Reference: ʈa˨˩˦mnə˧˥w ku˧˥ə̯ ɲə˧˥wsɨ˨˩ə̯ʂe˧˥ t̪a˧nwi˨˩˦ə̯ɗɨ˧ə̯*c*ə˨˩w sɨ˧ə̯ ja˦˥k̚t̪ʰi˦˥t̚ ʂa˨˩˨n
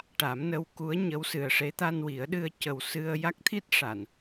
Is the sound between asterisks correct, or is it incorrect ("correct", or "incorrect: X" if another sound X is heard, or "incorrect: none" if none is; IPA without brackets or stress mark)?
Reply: correct